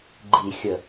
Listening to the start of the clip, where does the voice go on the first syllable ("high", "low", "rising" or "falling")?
low